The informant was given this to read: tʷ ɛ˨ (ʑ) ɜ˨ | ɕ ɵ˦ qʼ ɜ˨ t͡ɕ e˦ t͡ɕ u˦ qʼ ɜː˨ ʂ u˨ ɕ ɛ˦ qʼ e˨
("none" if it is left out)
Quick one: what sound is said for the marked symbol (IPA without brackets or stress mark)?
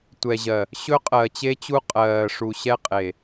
ʑ